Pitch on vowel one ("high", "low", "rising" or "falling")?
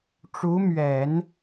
rising